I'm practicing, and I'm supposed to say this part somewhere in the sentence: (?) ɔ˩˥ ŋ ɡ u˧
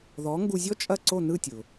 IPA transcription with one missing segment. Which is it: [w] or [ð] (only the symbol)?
ð